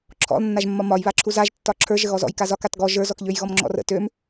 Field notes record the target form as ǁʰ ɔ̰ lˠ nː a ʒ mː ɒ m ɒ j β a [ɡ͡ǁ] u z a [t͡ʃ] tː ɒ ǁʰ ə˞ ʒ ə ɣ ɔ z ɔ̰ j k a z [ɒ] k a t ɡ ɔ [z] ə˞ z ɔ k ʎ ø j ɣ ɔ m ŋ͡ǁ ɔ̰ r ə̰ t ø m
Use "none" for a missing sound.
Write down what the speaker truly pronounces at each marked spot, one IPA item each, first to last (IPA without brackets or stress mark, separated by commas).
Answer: ǁʰ, ʒ, ɒ, ʒ